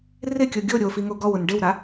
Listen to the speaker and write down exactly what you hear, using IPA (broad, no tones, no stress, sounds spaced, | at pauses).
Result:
r ɪ kʲ o ɡʲ o ɾʲ o f i ŋ o ɡ ɔ w ʊ n ɖ ɪ w ɾ a